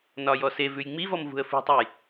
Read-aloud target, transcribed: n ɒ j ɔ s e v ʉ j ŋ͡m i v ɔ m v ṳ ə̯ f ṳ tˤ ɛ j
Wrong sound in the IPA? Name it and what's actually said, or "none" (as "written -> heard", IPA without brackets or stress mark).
none